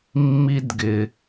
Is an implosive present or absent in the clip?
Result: absent